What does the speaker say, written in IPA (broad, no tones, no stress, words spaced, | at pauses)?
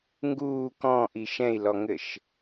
ŋɡuː kɔ̃ʔi ʃɛ̃i̯lɔŋɘʃ